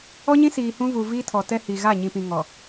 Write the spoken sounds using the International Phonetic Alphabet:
ɔ˦ ɲ ĩ˦ s iː˨ h ũ˦ v u˨ v iː˦ tʰ ɔ˨ t ɛ˦ h i˨ ɣ a˦˨ ɲ ĩ˨ p ĩ˨ ŋ ɔ˨

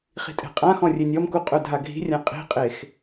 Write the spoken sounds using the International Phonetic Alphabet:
χ i̤ tʼ e̤ qʼ ã x ɔ̃ rʲ e nʲ ɔ m k u qʼ ɵ dʱ a ɡʱ i̤ rʲ ã qʼ i̤ qʼ e x

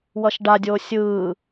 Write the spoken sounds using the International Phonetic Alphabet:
w ʌ ʃ ɖ a dʲ oː sʲ ɯː

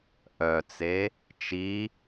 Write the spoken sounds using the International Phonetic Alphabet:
ʔ œ t͡s e | t͡ʃ i

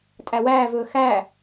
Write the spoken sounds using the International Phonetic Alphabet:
tʼ æ w æː v ɵː x æ

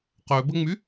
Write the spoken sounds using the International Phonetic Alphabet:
q ø b ə ŋ͡m y

